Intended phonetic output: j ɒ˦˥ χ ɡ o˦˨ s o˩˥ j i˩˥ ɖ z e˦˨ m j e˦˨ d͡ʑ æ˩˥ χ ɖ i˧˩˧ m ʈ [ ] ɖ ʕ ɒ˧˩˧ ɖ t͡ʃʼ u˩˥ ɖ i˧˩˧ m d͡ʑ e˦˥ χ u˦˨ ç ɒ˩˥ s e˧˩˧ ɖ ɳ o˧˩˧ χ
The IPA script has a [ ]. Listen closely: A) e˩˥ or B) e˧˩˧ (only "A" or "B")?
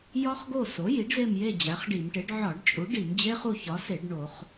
A